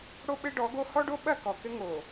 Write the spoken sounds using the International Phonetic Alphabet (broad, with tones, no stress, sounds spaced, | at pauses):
ɽ o˦ ɓ ɘ˦ ɖ ɔ˨˦ ɡ o˦ h ɔ˦ ɖ o˦ ɓ ɐ˦˨ k ɔ˨ k ɘ˦ ŋ o˨